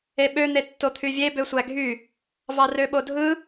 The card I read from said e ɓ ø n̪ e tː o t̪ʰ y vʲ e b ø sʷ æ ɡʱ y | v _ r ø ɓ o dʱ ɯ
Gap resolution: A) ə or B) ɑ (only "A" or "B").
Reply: B